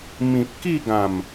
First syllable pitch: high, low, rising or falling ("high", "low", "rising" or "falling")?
low